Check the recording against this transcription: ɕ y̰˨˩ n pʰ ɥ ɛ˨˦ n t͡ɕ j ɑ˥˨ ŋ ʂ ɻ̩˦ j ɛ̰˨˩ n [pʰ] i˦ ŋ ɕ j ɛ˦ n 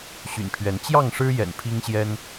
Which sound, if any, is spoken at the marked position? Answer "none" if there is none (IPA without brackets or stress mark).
pʰ